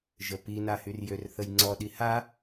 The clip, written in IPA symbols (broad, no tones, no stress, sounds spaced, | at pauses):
ʒ ə p i n a h y r j ø r θ ə j ŋ͡ǀ ɔ ɗ i h a